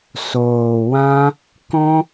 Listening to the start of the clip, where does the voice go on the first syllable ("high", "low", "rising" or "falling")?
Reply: low